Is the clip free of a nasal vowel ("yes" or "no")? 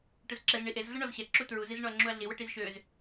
yes